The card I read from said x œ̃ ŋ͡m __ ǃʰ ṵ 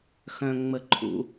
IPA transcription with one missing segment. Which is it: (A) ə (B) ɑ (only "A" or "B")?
A